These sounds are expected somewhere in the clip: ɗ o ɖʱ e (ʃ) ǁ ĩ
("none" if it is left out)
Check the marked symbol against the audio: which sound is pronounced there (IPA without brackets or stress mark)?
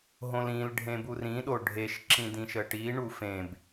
ʃ